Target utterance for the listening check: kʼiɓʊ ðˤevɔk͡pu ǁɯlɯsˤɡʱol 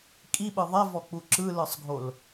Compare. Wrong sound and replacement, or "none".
ʊ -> ɯ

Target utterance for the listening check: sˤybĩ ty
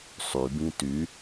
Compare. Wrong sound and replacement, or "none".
none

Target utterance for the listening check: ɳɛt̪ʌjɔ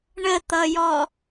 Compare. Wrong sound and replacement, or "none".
ɛ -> ə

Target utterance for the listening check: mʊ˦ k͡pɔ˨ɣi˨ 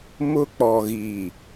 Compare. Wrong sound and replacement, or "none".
none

